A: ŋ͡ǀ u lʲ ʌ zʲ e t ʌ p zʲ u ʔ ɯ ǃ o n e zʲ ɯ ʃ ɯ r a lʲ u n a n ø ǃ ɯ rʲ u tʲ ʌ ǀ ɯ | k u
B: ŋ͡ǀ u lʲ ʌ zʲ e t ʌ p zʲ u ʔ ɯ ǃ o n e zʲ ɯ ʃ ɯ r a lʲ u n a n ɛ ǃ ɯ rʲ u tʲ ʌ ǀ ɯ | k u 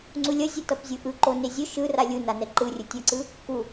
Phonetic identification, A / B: B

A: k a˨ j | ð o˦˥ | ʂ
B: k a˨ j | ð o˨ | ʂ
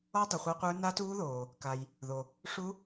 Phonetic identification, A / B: B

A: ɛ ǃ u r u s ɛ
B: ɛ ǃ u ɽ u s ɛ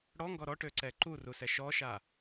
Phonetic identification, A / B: A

